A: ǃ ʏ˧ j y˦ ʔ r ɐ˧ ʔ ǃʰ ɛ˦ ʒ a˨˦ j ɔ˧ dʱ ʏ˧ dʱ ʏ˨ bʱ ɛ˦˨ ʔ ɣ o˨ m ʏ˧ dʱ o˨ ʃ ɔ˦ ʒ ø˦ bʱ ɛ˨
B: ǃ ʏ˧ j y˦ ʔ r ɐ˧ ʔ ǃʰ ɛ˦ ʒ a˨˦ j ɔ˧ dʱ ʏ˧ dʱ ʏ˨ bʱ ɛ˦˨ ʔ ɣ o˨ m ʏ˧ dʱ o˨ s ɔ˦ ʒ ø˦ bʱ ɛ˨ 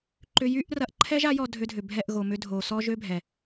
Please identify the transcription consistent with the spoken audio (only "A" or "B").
B